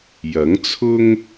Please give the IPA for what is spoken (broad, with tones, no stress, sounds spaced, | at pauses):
j ɐ˨˥ ŋ t͡sʰ ʊ˥ ŋ